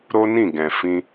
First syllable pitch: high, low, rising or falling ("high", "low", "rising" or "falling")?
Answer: high